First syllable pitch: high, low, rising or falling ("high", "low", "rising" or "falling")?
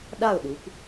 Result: falling